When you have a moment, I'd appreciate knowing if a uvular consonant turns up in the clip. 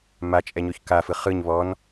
yes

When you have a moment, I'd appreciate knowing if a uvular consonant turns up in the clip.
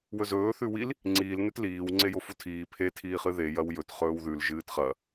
yes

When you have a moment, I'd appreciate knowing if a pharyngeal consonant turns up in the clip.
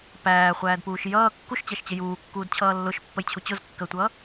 no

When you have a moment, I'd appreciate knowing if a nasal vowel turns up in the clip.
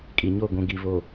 yes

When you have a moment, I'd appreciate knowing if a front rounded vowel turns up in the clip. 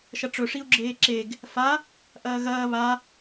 no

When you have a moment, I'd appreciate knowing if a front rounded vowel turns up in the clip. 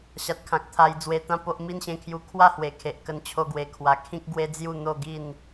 no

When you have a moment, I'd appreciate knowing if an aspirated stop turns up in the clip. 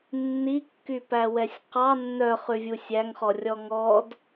no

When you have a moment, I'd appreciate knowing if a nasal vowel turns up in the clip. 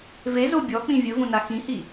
yes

